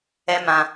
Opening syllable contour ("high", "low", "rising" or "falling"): high